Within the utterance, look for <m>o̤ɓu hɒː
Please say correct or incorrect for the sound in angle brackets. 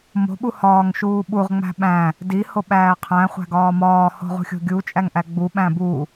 correct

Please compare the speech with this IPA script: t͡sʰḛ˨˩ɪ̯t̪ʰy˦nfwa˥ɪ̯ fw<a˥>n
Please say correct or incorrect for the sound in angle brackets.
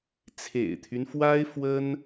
incorrect: ə˥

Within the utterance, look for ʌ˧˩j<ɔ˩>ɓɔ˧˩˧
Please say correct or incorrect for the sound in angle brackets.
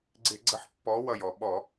correct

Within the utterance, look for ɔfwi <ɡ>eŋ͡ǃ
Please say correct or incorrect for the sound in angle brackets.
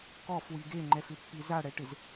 correct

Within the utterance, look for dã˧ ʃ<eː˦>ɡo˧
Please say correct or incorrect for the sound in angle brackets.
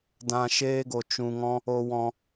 correct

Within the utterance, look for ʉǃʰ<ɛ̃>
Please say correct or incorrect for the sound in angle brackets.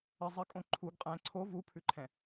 correct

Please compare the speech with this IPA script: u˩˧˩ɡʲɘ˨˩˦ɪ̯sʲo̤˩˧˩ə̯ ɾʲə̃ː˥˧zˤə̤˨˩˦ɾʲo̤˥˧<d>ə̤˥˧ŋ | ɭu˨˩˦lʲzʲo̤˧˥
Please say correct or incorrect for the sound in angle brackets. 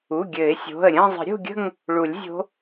incorrect: ɡʲ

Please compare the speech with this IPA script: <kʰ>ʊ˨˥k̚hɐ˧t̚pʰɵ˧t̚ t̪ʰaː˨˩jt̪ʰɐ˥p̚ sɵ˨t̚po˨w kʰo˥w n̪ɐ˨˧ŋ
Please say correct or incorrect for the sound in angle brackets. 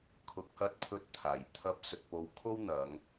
correct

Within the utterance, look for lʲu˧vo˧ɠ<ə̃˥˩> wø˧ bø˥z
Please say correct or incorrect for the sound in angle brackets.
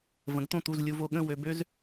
correct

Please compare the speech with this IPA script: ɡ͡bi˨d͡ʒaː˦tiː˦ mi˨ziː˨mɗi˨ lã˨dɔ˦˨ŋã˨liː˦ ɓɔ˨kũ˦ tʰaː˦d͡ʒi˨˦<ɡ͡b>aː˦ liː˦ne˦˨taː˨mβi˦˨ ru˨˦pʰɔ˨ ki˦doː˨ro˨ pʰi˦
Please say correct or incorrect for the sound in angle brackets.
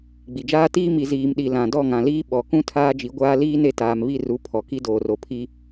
incorrect: ɡʷ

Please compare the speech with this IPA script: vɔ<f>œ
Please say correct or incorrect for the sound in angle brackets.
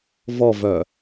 incorrect: v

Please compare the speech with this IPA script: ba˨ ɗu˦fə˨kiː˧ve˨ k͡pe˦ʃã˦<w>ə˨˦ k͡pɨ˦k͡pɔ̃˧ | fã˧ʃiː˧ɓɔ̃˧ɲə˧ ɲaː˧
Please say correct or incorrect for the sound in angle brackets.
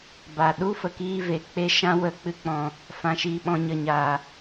correct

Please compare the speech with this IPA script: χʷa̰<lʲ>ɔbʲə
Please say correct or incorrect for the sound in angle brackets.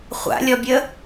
correct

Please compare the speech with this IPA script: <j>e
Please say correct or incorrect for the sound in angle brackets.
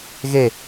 incorrect: ɣ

